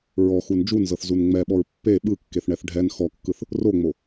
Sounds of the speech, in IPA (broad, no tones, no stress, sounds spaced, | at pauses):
ɹ ɔ x u n d͡ʒ u n z ɤ θ z u n ŋ͡m ɛ ɓ ɔ ɹ pː e ɓ ɯ kː e θ ɳ ɛ θ ɖʱ ɛ n x ɔ kː ɯ θ | r o ŋ͡m o